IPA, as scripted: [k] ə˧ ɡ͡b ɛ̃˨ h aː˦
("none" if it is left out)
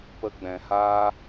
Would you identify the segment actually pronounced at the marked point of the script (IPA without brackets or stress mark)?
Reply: p